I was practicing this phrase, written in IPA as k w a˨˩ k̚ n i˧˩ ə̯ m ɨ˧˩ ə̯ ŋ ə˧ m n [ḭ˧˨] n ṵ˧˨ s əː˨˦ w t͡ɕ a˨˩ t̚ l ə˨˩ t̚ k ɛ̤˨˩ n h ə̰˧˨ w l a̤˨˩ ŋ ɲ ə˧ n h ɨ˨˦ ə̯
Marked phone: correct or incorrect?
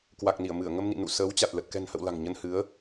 correct